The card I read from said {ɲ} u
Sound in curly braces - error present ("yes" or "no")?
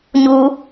no